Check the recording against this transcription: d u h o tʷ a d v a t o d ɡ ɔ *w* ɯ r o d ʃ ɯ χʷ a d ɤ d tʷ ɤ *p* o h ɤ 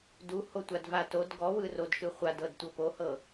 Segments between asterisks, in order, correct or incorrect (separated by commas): correct, correct